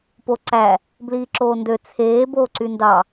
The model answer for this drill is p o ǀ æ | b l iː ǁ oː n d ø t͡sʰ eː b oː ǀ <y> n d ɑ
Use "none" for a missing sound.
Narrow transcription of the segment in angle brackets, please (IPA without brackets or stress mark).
y